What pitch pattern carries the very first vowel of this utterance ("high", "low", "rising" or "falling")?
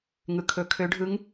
low